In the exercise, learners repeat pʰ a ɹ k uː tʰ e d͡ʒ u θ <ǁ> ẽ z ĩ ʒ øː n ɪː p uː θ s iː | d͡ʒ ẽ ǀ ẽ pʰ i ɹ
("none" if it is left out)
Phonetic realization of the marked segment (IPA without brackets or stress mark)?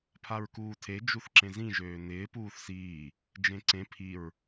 ǁ